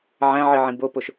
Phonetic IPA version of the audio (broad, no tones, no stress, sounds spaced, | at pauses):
ʕ æ̃ ʕ i ʕ ĩ b o p o ʃ